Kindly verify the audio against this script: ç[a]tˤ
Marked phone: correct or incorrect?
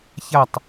correct